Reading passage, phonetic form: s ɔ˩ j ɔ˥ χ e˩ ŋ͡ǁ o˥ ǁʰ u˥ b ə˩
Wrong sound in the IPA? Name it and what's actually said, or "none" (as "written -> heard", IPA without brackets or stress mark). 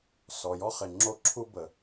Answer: none